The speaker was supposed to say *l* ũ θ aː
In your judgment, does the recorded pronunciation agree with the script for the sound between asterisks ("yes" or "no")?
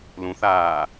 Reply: yes